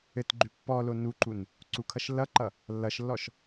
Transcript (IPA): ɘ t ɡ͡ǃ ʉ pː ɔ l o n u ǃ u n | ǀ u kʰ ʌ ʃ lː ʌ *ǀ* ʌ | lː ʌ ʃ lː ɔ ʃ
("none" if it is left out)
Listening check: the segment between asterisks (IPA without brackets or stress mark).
ǃ